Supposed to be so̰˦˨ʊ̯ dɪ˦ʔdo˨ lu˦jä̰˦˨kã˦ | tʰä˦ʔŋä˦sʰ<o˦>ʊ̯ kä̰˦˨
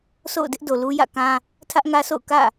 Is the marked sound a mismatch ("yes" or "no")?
yes